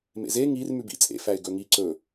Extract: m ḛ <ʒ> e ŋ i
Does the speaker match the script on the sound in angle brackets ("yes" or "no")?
no